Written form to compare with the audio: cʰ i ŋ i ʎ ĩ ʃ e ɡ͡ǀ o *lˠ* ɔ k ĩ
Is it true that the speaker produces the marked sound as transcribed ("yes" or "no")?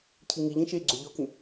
no